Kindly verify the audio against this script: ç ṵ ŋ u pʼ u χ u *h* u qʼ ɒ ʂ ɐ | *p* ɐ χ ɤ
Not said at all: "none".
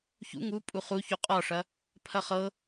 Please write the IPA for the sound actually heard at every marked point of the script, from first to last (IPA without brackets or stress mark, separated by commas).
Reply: ç, pʰ